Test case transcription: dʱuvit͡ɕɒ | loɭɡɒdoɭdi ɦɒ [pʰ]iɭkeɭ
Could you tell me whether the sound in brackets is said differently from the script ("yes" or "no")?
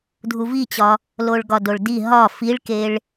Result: yes